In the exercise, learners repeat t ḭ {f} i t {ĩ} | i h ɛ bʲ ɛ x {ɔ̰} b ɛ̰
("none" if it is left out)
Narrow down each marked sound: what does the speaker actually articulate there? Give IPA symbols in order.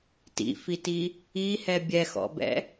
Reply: f, i, ɔ̰

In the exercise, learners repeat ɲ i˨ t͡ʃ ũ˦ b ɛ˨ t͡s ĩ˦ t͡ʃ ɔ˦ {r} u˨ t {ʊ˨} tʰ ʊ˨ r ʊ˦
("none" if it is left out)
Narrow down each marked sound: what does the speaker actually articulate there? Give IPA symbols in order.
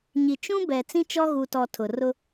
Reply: ɣ, ɔ˨

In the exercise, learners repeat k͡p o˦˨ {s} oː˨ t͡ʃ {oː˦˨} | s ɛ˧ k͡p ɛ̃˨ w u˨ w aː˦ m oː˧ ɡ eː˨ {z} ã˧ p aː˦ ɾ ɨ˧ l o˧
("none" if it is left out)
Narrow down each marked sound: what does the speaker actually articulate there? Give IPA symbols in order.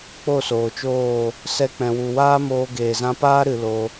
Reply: s, oː˦˨, z

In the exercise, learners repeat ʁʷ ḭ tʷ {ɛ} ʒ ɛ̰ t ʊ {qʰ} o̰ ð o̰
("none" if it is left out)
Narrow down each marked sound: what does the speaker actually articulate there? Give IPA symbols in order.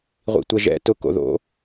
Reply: ɛ, k

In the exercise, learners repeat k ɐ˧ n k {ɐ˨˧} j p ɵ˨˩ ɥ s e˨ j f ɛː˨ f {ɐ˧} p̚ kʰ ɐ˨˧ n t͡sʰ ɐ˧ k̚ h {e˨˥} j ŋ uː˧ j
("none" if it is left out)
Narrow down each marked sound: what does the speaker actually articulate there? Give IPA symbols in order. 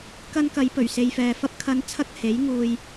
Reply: ɐ˨˧, ɐ˧, e˨˥

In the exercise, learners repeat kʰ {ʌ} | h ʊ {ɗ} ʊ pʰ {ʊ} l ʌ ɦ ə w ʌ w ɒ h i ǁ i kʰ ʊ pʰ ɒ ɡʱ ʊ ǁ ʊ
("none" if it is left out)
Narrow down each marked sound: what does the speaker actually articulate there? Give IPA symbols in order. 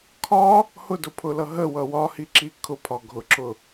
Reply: ɒ, d, ʊ

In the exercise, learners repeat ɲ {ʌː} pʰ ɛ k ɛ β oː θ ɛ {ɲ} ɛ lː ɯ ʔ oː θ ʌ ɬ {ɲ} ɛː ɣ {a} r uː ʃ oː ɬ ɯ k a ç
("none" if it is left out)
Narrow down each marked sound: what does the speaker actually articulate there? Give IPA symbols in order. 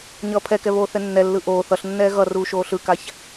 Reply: ʌː, nː, nː, ʌ

